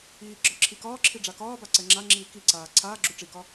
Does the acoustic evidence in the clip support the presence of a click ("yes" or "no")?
yes